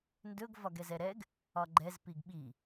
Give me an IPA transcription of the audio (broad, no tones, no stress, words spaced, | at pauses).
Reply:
ndɵɡ vɒɡɛzɛɾɛɡ | ɒɡ͡ǃɛz piɡɓi